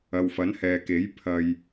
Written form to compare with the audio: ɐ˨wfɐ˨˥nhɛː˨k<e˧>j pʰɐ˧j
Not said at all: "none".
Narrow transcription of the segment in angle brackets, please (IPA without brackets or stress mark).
e˨˥